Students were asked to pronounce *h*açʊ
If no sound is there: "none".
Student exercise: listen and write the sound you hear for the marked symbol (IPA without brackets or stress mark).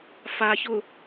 f